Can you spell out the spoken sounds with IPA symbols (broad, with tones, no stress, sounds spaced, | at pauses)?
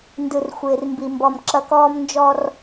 n d ɯ˨ r xʷ ɪː˨ r m b i˨ m b ɔ˨ m ǁ ɐ˦ k ɔː˦ m n d͡ʒ ɔ˦ r